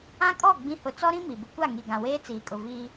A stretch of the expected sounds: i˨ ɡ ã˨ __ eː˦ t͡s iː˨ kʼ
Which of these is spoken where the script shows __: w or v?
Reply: w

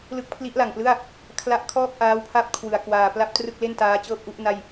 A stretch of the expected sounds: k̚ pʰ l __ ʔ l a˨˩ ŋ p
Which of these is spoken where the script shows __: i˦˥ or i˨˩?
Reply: i˦˥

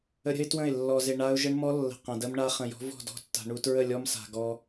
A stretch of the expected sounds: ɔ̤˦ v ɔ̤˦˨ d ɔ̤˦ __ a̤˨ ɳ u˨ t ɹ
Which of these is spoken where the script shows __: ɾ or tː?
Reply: tː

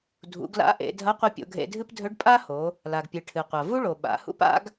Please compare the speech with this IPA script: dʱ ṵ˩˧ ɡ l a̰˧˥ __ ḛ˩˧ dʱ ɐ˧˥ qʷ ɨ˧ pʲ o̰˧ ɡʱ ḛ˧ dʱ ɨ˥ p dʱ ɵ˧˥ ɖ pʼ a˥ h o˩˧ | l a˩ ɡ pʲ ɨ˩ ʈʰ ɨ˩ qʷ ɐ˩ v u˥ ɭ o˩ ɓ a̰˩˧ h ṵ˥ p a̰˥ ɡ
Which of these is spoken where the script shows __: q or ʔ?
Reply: ʔ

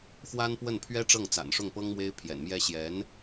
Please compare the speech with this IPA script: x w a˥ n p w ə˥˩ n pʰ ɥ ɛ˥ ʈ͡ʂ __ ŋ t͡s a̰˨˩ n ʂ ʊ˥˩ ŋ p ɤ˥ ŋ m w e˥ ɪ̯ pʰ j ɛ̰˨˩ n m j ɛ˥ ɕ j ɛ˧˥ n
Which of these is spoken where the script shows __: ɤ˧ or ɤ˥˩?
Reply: ɤ˥˩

